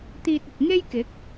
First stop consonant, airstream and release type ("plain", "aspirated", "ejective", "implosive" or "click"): plain